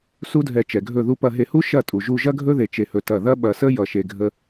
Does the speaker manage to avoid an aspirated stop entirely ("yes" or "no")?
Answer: yes